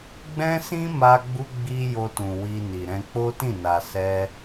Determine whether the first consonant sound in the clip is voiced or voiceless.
voiced